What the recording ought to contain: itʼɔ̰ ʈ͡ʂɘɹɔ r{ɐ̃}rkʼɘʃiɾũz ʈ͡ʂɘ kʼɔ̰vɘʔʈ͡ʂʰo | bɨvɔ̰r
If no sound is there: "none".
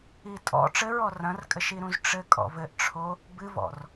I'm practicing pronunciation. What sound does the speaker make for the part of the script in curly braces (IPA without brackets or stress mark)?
ɐ̃